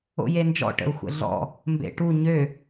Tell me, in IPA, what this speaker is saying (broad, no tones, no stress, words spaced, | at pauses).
o̰jend͡ʒɔ̰ ʈə̰u̯xʷə̰ɮɔ̰ | mbḛʈu ɲø